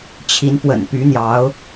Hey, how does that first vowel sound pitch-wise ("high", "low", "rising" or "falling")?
rising